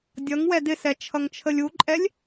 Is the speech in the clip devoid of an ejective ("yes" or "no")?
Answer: no